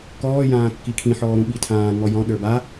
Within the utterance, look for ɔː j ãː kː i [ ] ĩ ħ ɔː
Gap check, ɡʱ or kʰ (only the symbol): kʰ